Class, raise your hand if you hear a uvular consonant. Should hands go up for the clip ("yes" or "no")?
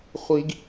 yes